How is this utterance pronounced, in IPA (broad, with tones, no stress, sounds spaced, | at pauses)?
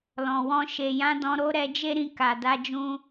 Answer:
l ɔ̃˨ w ɔ̃˧ ʃ e˨ j ã˨˦ d ɔ̃˧ ɾ o˦ ɾ ɛ˧ d͡ʒ e˦ ɾ ĩ˧ k a˨ d a˧ d͡ʒ ũ˧